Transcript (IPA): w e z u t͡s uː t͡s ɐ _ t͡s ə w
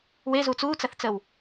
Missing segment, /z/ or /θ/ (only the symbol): θ